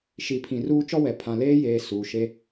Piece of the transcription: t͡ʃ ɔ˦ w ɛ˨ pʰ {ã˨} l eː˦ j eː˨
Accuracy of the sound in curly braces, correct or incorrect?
correct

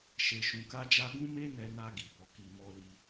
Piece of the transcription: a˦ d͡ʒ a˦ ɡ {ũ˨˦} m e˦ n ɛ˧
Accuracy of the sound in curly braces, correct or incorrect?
incorrect: ũ˦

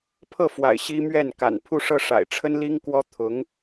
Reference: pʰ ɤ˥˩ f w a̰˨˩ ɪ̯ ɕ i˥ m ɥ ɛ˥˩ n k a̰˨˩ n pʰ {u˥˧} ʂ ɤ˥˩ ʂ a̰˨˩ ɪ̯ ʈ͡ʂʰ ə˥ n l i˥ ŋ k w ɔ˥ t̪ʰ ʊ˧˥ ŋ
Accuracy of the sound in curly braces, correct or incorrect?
correct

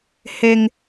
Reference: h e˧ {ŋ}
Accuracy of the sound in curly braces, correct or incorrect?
correct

